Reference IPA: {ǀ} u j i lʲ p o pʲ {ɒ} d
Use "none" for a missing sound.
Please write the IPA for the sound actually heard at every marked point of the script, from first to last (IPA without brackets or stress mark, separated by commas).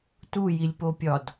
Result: t, ɒ